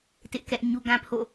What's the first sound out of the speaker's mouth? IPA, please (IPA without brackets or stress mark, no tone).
t